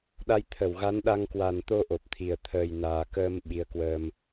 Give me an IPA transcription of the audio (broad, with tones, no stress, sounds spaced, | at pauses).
ɗ a˧ j t̪ʰ ə˧˩ w ɣ a˨˦ n ɗ a˧ ŋ k w a˨˩ n t̪ o˧ ʔ o˨˩ p̚ t̪ʰ i˨˩ ə̯ t̪ʰ əː˨˩ j n aː˨˩ k əː˧ m ɓ i˨˦ ə̯ k w əː˧ m